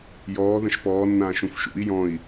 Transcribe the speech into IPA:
jɔː ðə̃ʃpɔːnːãːʃũf ʃṵi̯ jɔ̃i̯

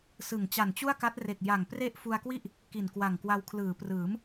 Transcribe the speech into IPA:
sɯ˨˩ŋ t͡ɕa˨˩nt͡ɕu˥˩a̯ka˦˥t̚re˨˩k̚ ja˨˩ŋpre˥˩ʔ fu˧a̯kwi˥˩ʔ | ki˨˩nkwa˨˩ŋkwa˧w kʰlɯː˩˦prɯː˩˦m

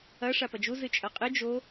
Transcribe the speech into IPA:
ɐ ʂapɐd͡ʒu zɨt͡ʃʼɐqʼɨ d͡ʒo

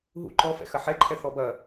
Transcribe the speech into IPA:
ɦṵ ǃɔfɛ̰ xɐħɛ ǃʰɛθɔbɐ

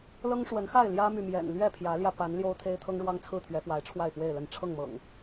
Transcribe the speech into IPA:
lɤ˦ŋʂwə˨˦nxa˥˨ɪ̯ ljä˦my˨mjɛ̰˨˩n lɥɛ˥˨pʰjä˨˦ljä˧ pa˨˦n ljo˦ʊ̯t̪ʰe˦ɪ̯ t̪ʰɤ˦ŋɻwɑ˦ŋt͡sʰɹ̩˥˨ t̪ʰɥɛ˨˦fwa˨˦ɪ̯ ʈ͡ʂʰwa˥˨ɪ̯pwe˥˨ɪ̯lə˥˨n ʈ͡ʂʰɤ˥˨ŋmɤ̰˨˩ŋ

